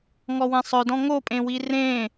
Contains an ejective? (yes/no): yes